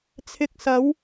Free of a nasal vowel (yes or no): yes